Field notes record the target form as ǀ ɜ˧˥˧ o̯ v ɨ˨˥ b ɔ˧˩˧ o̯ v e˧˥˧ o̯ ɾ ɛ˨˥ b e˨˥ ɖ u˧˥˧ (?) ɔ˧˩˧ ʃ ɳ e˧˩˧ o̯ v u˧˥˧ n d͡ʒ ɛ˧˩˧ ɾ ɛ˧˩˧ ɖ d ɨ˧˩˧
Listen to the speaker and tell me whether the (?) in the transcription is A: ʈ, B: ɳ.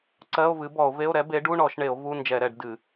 B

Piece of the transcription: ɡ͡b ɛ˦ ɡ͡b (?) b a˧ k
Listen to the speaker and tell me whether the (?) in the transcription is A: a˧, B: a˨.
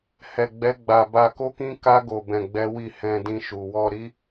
A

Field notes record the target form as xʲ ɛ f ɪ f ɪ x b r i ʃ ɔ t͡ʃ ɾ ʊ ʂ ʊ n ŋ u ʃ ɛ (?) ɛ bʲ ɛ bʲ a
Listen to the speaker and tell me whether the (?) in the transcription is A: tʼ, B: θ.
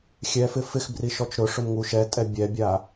A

